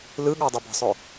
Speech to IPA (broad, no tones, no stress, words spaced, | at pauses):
lɯɠɔdˤɨ bə̤sˤɵ